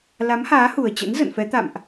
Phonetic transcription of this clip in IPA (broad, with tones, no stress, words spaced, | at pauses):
la˨˦mhaː˨˦hu˨˩ə̯ t͡ɕə̰˧˥nzə̰˧˨nfɛ˨˦ t̪a̰˧˨mʔ